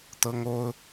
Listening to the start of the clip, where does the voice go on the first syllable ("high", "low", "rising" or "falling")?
high